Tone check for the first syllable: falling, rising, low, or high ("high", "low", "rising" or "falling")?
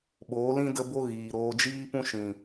rising